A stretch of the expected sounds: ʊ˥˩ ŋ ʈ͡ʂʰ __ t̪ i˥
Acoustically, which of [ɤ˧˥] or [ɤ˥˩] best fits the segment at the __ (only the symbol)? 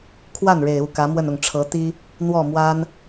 ɤ˧˥